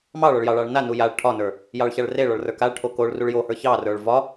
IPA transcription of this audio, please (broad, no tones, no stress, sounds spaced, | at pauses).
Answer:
m ɑ ɭ ɒ ɭ j ɑ ɭ ɑ ɭ n a n u j a ɭ ʈʰ ɒ n ə˞ | j ɑ ɭ ç a ɭ r e ɭ ɒ ɭ r ə˞ k a ɭ ʈʰ o k o ɭ r u ɭ j o h ə˞ ç ɑ r ə˞ ɭ v ɒ